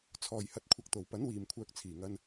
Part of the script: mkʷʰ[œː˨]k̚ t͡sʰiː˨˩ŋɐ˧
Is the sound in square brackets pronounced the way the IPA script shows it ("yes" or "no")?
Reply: yes